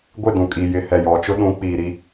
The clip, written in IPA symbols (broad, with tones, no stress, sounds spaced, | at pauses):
ɡʷ ɪ˦˨ d ũ˨ kʼ i˨ j ɪ˨ h ɛ˨ j ɔ˨ t͡ʃ ʊ˦ ɗ ũ˨˦ k͡p iː˨ ɾ i˦